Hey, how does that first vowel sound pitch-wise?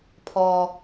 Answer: low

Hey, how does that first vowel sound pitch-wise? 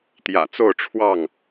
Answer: low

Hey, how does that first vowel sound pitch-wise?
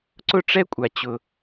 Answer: high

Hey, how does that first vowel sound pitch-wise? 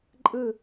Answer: falling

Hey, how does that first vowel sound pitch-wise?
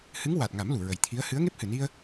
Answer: rising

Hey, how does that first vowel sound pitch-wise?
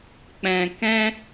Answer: low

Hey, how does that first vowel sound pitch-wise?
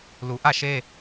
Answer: low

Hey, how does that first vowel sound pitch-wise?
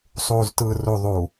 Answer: low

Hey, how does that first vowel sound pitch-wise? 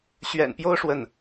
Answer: low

